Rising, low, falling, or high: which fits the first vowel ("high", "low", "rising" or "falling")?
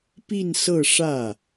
falling